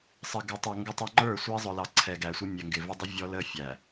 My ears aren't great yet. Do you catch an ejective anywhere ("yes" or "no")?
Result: no